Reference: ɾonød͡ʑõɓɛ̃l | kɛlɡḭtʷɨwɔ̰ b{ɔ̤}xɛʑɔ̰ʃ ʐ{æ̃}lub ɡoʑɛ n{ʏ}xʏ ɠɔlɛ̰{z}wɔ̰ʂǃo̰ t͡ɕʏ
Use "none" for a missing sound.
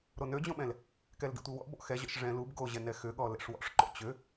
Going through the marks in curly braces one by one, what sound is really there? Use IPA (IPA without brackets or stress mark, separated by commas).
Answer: ɔ̰, ɛ̃, ɛ, ʂ